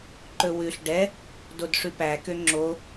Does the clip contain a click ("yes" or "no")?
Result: yes